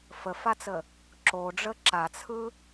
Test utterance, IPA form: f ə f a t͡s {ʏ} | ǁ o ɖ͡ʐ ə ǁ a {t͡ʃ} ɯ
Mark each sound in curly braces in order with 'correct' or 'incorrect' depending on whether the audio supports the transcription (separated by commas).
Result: incorrect, incorrect